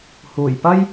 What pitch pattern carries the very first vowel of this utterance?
low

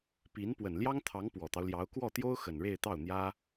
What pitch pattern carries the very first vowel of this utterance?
rising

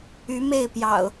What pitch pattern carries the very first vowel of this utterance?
rising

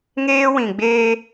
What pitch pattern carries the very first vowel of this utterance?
high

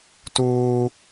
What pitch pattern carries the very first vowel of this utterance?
high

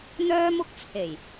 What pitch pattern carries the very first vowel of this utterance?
high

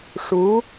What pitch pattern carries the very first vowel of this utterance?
rising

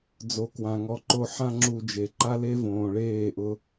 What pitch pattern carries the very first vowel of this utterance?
rising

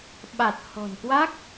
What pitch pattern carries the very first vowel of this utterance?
low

